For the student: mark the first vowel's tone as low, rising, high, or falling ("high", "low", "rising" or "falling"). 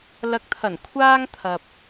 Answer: rising